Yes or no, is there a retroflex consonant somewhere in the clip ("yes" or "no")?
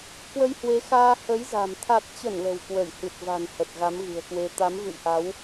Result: no